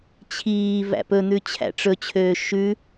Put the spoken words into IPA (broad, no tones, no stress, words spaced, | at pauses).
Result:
t͡ɕʰiː væ̰pɵn̪ʉ t͡ɕʰæ̰ʈ͡ʂɵt͡ɕʰøː ʃʉ